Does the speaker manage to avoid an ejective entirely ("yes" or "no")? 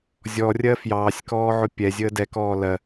yes